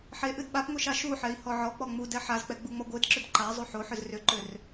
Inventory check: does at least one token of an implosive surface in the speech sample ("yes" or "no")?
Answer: yes